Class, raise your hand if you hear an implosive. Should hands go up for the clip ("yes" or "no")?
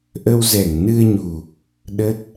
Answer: yes